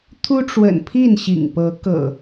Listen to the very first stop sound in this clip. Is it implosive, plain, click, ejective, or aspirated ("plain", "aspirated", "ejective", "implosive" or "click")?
aspirated